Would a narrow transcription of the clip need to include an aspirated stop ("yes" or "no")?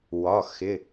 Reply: no